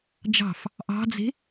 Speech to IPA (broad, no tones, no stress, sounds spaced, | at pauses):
d͡ʒ ɑ̤ f | ʔ ɑ̤ d͡z e̤